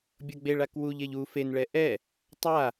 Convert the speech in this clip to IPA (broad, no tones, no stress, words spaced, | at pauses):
bʲʌɡ͡beɭak wuʎeʎ u fenɭɛ ʔɛ | tˤa